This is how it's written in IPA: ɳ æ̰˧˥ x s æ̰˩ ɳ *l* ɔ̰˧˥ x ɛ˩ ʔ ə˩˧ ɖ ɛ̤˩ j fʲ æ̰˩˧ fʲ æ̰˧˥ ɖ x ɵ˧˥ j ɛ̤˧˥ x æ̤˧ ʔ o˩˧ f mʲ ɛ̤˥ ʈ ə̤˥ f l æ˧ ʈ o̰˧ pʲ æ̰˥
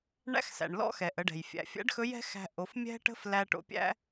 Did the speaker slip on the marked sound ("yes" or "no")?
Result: no